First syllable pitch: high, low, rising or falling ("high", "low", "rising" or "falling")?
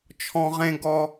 high